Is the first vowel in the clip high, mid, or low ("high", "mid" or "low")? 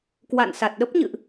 low